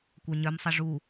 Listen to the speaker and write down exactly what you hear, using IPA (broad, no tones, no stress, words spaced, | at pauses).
kʷœɲœmsˤə ʐu